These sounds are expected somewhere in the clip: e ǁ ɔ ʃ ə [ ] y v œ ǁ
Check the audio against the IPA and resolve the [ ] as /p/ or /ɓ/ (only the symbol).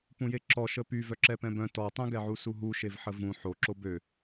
p